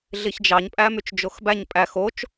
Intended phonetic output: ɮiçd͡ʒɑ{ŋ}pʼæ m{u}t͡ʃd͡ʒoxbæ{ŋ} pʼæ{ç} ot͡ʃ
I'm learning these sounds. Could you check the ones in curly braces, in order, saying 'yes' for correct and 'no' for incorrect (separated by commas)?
no, no, no, no